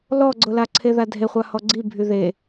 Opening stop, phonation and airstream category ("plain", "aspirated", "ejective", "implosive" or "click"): click